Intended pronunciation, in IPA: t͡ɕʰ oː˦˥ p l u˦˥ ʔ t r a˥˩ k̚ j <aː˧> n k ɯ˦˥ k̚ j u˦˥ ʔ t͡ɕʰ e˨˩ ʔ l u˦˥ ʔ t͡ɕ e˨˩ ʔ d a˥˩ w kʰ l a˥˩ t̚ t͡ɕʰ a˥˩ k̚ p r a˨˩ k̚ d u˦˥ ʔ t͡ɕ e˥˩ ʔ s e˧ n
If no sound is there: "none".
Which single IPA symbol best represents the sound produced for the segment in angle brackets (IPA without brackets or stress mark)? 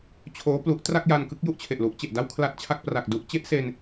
a˧